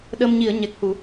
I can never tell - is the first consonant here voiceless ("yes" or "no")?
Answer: no